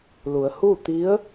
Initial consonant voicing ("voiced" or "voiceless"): voiced